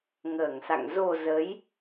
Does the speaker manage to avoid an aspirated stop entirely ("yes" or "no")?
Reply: yes